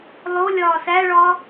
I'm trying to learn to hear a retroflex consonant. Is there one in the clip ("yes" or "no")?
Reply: yes